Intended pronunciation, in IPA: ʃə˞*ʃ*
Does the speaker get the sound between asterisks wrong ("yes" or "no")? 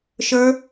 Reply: yes